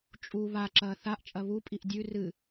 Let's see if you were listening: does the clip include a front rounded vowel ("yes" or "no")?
no